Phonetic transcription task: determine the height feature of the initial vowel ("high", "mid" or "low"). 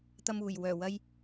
low